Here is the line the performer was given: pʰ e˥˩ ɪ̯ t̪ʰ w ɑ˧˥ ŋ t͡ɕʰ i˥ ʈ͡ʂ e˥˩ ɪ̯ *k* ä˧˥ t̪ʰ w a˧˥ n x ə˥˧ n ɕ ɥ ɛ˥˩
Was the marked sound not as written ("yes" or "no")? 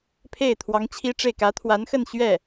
no